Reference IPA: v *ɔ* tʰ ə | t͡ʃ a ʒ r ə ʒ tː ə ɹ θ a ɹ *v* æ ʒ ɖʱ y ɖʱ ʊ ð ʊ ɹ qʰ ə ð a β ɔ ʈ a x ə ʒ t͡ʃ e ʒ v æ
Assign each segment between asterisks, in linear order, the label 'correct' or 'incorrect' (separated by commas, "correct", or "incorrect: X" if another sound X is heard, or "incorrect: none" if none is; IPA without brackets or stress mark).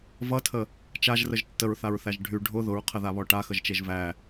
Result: incorrect: ʌ, incorrect: θ